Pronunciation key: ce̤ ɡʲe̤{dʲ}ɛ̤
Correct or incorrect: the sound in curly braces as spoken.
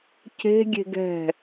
incorrect: ɡ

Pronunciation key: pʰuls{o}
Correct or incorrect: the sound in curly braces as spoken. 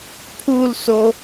correct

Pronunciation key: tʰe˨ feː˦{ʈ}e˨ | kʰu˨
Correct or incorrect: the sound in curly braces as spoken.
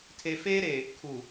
incorrect: ɾ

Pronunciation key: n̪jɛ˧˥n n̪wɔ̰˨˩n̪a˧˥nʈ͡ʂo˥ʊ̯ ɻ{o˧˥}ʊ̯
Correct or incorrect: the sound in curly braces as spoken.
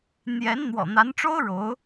correct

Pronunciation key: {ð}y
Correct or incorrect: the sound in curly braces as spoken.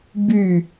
incorrect: b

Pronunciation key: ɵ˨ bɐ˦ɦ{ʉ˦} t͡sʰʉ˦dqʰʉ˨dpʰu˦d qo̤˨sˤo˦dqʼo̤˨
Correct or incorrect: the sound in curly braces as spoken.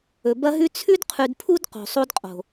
correct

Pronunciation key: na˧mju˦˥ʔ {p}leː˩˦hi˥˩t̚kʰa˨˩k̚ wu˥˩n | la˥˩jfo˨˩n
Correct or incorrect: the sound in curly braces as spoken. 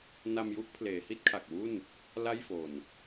incorrect: pʰ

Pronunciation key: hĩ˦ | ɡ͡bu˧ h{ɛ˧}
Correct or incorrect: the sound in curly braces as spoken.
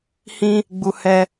correct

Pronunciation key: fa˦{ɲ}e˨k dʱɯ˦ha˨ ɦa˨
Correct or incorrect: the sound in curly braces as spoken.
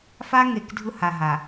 incorrect: ŋ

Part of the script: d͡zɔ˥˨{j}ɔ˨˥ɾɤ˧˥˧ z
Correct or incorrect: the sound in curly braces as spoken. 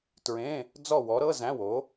incorrect: w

